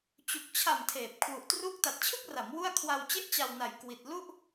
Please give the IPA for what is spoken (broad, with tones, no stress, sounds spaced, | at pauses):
t͡ɕ u˨˩ k̚ t͡ɕʰ a˨˩ m tʰ eː˨˩ p̚ kʰ w u˨˩ ʔ t r uː˦˥ k̚ t a˨˩ t̚ t͡ɕʰ ɯ˥˩ k̚ r a˩˦ m w u˥˩ a̯ kʰ w a˧ w t͡ɕ e˥˩ ʔ t͡ɕ a˧ w n a˨˩ j k w i˨˩ t̚ l u˥˩ ʔ